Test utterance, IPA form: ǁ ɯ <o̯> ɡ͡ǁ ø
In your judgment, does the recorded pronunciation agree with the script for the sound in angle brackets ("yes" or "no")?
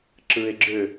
no